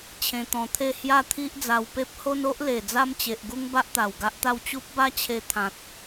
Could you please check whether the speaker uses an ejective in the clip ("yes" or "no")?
no